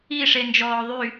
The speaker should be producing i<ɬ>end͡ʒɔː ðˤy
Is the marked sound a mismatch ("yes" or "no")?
yes